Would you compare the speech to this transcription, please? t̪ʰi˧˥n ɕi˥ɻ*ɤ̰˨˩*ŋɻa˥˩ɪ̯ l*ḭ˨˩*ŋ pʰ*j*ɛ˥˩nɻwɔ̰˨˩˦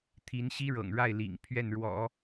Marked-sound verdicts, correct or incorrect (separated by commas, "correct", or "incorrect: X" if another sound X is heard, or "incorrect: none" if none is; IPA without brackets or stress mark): correct, correct, incorrect: ɥ